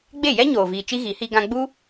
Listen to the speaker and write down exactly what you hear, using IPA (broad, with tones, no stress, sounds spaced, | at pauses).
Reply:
ɡ͡b e˦˨ j ɛ˦ ɲ oː˨ v iː˨ t͡ʃ i˦ ɣ i˨˦ h i˦ ɡ ã˦ ɡ͡b u˦